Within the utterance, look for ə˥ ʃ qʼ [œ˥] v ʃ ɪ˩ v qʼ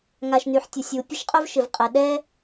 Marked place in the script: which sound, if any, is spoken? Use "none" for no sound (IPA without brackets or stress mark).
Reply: œ˥